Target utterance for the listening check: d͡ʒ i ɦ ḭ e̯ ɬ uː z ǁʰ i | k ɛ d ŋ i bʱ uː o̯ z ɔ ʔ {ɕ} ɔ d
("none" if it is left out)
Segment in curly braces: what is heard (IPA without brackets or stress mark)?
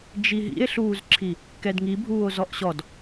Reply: ɕ